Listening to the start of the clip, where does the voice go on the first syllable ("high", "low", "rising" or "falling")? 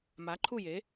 rising